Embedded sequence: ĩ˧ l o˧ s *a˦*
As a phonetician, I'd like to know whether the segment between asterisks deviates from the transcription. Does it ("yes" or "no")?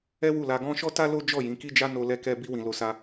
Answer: yes